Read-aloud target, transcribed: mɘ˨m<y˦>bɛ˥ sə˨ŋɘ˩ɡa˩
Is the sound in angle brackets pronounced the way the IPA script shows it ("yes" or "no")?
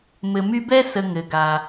yes